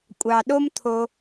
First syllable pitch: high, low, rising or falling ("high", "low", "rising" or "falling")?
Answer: low